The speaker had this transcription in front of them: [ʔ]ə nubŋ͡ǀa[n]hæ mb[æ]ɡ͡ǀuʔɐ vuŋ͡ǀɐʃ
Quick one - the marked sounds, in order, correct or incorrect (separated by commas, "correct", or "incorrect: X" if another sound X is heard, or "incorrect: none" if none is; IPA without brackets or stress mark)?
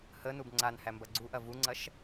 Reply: incorrect: h, correct, incorrect: ɐ